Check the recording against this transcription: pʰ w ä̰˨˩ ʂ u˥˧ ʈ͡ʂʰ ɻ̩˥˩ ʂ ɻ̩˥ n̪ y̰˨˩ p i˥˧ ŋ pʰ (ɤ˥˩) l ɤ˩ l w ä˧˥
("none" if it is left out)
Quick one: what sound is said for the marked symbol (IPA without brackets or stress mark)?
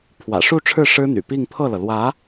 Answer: ɤ˥˩